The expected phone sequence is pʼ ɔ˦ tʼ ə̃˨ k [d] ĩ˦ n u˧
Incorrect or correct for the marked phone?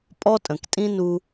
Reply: incorrect: tʼ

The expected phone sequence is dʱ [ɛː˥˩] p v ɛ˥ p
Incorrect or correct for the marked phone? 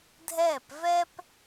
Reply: correct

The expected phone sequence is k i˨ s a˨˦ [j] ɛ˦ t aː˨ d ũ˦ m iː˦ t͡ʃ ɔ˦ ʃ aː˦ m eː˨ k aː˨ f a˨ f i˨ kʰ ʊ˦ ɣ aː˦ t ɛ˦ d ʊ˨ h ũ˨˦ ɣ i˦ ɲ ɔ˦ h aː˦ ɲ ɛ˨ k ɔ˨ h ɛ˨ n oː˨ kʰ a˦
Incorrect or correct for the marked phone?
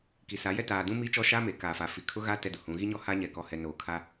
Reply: correct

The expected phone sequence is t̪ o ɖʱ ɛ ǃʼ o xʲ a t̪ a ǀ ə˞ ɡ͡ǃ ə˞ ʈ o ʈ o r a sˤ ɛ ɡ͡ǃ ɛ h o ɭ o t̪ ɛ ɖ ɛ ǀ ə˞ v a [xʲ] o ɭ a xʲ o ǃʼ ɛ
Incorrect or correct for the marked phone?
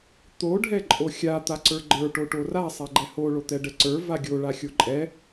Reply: incorrect: ɡʲ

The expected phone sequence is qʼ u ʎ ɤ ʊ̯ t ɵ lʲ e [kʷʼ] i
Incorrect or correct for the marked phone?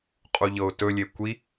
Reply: incorrect: kʷ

